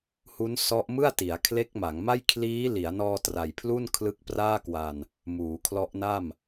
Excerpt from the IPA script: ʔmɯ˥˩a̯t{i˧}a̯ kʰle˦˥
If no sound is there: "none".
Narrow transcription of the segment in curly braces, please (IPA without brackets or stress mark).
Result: i˩˦